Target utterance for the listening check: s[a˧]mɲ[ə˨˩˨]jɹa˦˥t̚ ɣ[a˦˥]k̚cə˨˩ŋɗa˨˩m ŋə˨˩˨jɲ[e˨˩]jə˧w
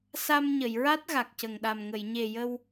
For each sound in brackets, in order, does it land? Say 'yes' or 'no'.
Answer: yes, yes, no, yes

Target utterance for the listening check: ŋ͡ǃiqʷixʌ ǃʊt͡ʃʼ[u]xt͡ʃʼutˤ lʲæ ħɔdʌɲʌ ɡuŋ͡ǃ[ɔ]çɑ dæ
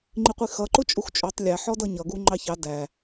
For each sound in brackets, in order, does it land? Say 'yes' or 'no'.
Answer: yes, no

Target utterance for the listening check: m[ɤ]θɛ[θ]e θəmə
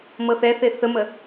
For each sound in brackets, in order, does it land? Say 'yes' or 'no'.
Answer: yes, yes

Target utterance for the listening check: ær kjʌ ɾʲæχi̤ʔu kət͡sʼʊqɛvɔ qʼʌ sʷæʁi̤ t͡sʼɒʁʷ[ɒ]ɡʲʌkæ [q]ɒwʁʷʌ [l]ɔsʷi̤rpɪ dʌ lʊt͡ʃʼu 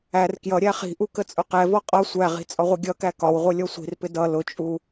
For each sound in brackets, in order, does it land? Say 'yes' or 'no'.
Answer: no, no, no

